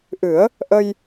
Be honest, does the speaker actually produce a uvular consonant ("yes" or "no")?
no